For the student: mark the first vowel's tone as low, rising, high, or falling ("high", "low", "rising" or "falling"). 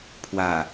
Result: low